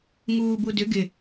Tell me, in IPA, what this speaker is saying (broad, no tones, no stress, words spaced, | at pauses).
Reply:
ŋuːbudʏ ɡɪ